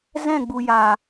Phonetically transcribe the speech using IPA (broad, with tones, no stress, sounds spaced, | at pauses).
z ɛ̃˦˨ ɡ͡b u˨ j aː˨